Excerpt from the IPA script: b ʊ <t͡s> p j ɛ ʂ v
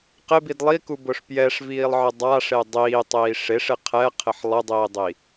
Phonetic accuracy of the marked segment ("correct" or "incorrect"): incorrect